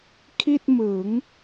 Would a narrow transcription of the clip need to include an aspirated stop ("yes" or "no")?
yes